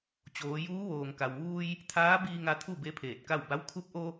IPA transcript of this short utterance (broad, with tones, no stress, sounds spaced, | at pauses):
t͡ɕ oː˩˧ j uː˧˥ ʋ oː˩ ŋ k a˩ w ʋ uː˧ j | t̪ʰ aː˧˥ b iː˧ ŋ a˧ t̪ʰ u˥˨ b e˧˥ pʰ eː˧˩ t̚ k a˥˨ w b a˧˥ w kʰ u˧ p̚ ʔ o˧